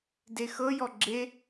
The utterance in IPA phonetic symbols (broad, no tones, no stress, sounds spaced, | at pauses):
d e x ɤ j ɔ ɡ͡ǁ e